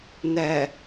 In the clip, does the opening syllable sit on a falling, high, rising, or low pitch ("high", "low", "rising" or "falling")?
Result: low